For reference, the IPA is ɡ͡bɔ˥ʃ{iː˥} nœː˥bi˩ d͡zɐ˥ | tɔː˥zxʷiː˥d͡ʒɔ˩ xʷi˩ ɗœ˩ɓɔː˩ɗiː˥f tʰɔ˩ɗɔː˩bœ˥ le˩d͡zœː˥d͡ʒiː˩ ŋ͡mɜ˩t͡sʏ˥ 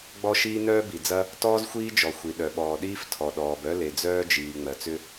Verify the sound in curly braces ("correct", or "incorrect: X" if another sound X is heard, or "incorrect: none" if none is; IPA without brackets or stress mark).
correct